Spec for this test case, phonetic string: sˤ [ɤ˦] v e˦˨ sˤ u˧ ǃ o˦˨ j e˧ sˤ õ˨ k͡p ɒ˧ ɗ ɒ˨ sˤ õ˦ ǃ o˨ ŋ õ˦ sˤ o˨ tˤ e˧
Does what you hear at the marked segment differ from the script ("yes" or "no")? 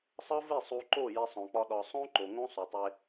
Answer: no